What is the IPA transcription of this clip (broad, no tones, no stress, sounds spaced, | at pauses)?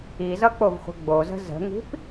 i z ʌ k͡p o v χʷ ə̤ ɡ͡b o z ə̤ z ə̤ ŋ i̤ p